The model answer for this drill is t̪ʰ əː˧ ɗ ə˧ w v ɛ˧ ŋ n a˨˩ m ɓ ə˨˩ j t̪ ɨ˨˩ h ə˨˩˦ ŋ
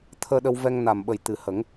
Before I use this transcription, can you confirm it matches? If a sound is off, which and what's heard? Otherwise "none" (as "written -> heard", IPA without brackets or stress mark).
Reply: none